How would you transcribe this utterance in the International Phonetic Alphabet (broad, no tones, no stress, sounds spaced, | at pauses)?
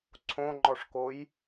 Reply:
ǀʰ õ ŋ͡ǃ ɔ ʂ k o j